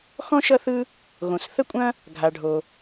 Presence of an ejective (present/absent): present